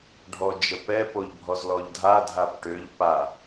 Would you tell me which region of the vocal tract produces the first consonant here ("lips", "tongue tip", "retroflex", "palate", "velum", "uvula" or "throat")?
retroflex